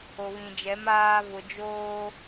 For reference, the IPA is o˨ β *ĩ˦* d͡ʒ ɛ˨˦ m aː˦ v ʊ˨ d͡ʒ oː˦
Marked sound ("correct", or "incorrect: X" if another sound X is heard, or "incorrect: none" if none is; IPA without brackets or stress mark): incorrect: ĩ˨